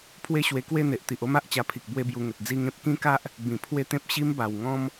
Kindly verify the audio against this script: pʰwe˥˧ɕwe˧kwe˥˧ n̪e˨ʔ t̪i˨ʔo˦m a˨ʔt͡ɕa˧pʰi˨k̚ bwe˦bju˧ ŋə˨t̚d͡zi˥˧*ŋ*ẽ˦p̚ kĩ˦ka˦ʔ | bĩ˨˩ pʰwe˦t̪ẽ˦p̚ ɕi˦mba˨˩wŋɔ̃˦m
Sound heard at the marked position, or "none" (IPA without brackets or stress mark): ŋ